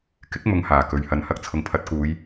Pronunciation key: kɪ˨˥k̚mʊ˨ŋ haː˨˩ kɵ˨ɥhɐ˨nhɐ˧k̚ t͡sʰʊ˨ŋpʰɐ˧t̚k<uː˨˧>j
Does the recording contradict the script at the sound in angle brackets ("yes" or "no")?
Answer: no